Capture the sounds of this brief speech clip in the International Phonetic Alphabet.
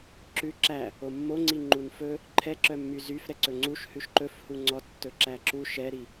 ǁʉ ǁæ | omːoŋ͡ǀi ŋ͡ǃunfɵ | ǃʰɛǁœmːy zyf ɾɛǀɵŋ͡ǀuʃ hʉʃǃɵfhu ŋ͡ǀɔtːɵ ǁæǁu ʃɛɾi

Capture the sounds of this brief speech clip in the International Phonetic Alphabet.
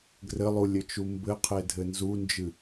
ɡrɘlˠulʲɘt͡ʃu mbɘqʰedʱɘ nzund͡ʒɨ

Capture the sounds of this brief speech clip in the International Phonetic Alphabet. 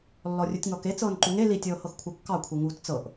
lːɔrʲutʲŋɔke t͡sɤːnǃuŋe litʲɤːhɤx kʷʰɤkːɑkʷʰe ŋuːtt͡sɤʔ

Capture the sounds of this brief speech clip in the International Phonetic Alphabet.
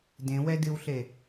dẽwɛ dɨwɬe

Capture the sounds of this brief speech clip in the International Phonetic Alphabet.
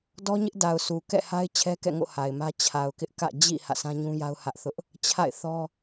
dɔ˦ɲɪ˦ʔda˨ʊ̯ su˨ kɛ̰˦˨ha˦ɪ̯ t͡ɕʰɛ˦kɛ̰˦˨ŋo̰˦˨ ha˨ɪ̯mä˦ t͡ɕʰa˨ʊ̯kɪ˦ʔkä̰˦˨ d͡ʑḭ˦˨ hä̰˦˨sʰã˦ɲũ˦ja˦ʊ̯ hä˦ʔθʊ˦ʔ | t͡ɕʰa̰˦˨ɪ̯θɔ˦

